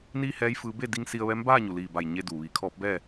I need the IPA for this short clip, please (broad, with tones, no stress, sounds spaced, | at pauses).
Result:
n iː˥˨ h ɛː˧˥ j f ɯː˧˥ b e˥˨ d i˧ ŋ s i˧ ə̯ ʋ ɛː˧˥ m b aː˥˨ ɲ u˩ l iː˧˩ b a˧˩ j ɲ e˧ d uː˩ ʋ iː˩˧ kʰ ɔː˧˥ p̚ b ɛː˥˨